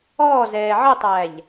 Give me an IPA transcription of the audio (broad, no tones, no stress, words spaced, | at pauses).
ɔːzɛː ʕətˤæʎ